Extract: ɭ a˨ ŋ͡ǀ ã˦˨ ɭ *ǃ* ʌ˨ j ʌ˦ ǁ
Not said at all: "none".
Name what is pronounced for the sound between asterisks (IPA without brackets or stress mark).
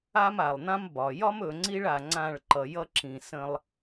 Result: ǃ